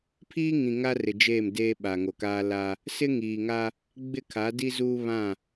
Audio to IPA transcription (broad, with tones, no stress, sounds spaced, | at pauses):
pʰ iː˦ ŋ ĩ˨ ŋ a˦ r ɪ˨ d͡ʒ eː˦˨ m d eː˦ ɓ a˨ ŋ o˨ k aː˦ l a˦ | s ɪ˦ ŋ iː˨ ŋ a˦ | ɡ͡b ɪ˦˨ kʰ a˨˦ d i˦ z uː˦ β ã˦˨